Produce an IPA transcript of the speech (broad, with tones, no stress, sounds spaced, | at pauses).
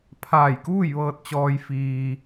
pʰ aː˧˩ j k uː˥˨ j ʋ ɤː˧ t̚ t͡ɕ ɔː˧ j f iː˧